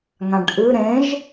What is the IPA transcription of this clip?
ŋ ã ɖ ʔ ɨ ɾ ẽ ʒ

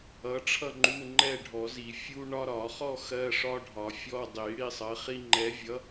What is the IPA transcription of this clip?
ʌ˨˥ ʈ͡ʂʰ ʌ˥˧ ŋ͡ǃ u˧˥˧ ŋ͡ǃ ɛ˥˧ ɖʱ ɔ˨˩˦ z i˨˩˦ fʲ u˥ ɳ ɒ˥ ɾ ɒ˨˩˦ χ ɔ˥˧ x ɜ˧˥˧ ʂ ɒ˥ ɖʱ ɒ˨˩˦ fʲ ɔ˧˥˧ dˤ i˨˩˦ ɽ i˥˧ sˤ ɜ˨˥ χ i˥ ŋ͡ǃ ɛ˨˥ vʲ ʌ˨˥

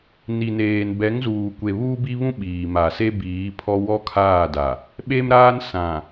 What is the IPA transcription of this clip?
n i˨ n eː˨ n b ɛ˨˦ ŋ z uː˨ kʷ e˨ β uː˦ b i˦ β ũ˦ ɓ iː˨ m a˨ s e˦ b iː˨˦ pʰ ɔ˦ w ɔ˦ kʰ aː˦˨ d a˨ | ɓ e˦ m ɾ aː˦ n s ã˨

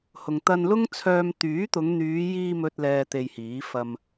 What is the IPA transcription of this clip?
h ʊ˨ ŋ t̪ ɐ˧ n l ʊ˥ ŋ t͡sʰ œː˧ m t̪ yː˨˥ t̪ ʊ˨˧ ŋ n̪ yː˨˧ j iː˧ m ɵ˥ t̚ l ɛː˧ t̪ e˧ j h iː˨˥ f ɐ˧ m

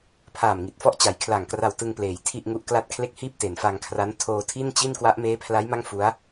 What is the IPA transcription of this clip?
pʰ aː˨˩ m ŋ i˨˩ t̚ f ɔ˥˩ ʔ t͡ɕ a˩˦ j kʰ l a˨˩ ŋ k r a˧ w t ɯ˧ ŋ p l eː˩˦ j tʰ i˥˩ ʔ ŋ u˦˥ ʔ k l a˥˩ t̚ kʰ l e˥˩ k̚ h iː˥˩ p̚ t e˩˦ n f a˧ ŋ kʰ r a˦˥ n tʰ oː˧ tʰ i˥˩ n t͡ɕ i˥˩ n k w a˦˥ ʔ m eː˦˥ pʰ l a˦˥ j m a˥˩ ŋ f u˦˥ a̯

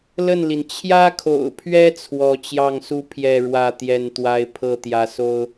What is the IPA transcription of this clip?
l ə˥˨ n l i˩ n t͡ɕʰ j ä˦ kʰ o̰˨˩ ʊ̯ pʰ ɥ ɛ˦ t͡sʰ w ɔ˨˦ t͡ɕ j ɑ˥˨ ŋ s u˥˨ pʰ j ɛ˥˨ ɻ w ä˥˨ t̪ j ɛ˥˨ n t̪ w a˦ ɪ̯ pʰ ɤ˥˨ t̪ j ä˨˦ s o˦ ʊ̯

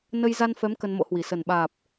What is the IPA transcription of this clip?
n ə˧ j z a˧ n f ɛ˨˦ m k ə˧ n m o̰˧˥ h w i˨˩ s ə˨˩ n ɓ aː˨˩ p̚

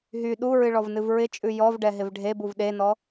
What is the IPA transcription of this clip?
ɦ y ɗ u ɹ ɨ ɭ ɔ v n ɨ v ɹ ɪ t͡ʃʼ ʉ j ɔ v ɖ ɛ ɦ ɪ v ɖʱ e b u v ɗ e n ɔ

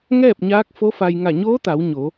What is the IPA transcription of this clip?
ŋ ɛː˥˨ p̚ ɲ aː˧˥ k̚ f o˧˥ f a˧ j ŋ a˧˩ ɲ oː˧˥ t̪ a˩˧ w ɲ o˩˧

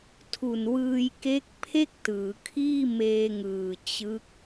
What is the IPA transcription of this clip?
tʰ u˨˩ n w ɯː˧ j k e˦˥ k̚ pʰ e˥˩ k̚ t ɯː˩˦ kʰ iː˥˩ m eː˧ ŋ ɯː˨˩ t͡ɕ ɯ˦˥ k̚

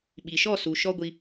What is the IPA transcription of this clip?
ɓ i˨ ʃ ɔ˦˨ s u˨ ʃ ɔ˦ ɡʷ i˧

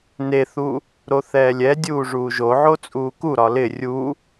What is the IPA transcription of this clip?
n e θ u | ɾ o θ ɛː lʲ ɛ dʲ uː ʐ uː ʒ o ʕ o t͡sʼ uː k u ɾ ɒ l ɪ rʲ u

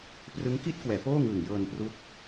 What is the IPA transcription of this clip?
p r ɯ˦˥ ŋ k i˥˩ t̚ k w ɛː˩˦ p oː˥˩ ŋ ɯː˨˩ ŋ j ɤː˧ n p r u˦˥ k̚

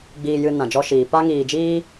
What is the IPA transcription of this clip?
ɡ͡b iː˨ j ɨ˨ n ã˨ d͡ʒ ɔ˧ ʃ iː˨ p a˧ ŋ iː˨ d͡ʒ iː˧

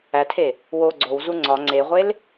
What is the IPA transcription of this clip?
æ tʰ e | w o ɡ͡ǀ o w z u ŋ͡ǀ ɒ ŋ͡ǀ e ʁʷ e l

